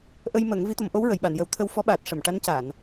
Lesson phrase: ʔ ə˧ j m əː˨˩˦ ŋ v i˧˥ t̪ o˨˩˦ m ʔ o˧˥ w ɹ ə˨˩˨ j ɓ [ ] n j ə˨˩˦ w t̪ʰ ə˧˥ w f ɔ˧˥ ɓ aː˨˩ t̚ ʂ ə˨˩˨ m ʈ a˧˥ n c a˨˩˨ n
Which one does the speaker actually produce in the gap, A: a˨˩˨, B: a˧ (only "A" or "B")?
A